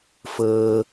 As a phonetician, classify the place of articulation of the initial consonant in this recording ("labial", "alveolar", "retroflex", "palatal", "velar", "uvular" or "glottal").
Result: labial